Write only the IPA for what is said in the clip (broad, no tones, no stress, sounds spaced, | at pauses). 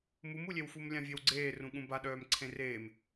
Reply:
m u m u lʲ e w f u m lʲ ã vʲ e w ɡ͡ǀ eː r ũ ɠ ũ b a ɗ œː m ǀʰ ẽ r eː m